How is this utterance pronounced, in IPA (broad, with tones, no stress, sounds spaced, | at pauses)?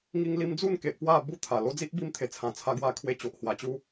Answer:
ŋ i˧ ŋ l i˧ m d͡z u˥˧ n k e˨ ʔ p w a˥˧ b u˧ t̪ʰ a˨˩ l o˦ d͡z i˦ ʔ b i˧ m t̪ʰ e˨˩ t͡sʰ ã˨˩ t͡sʰ a˧ ɡ w a˧ kʰ w e˧ t͡ɕ o˨ ʔ h w a˨˩ t͡ɕ u˧